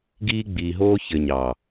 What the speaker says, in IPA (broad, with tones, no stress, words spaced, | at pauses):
ɡiː˥ɡ͡biː˧ɦoː˥ çɘ˧ ɲɑ˨˩